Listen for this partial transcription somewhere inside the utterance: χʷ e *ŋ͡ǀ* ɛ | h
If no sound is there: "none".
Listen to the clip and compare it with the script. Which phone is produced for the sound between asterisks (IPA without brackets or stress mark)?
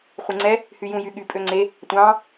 ŋ͡ǀ